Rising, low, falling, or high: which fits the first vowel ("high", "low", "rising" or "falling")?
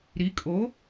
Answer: rising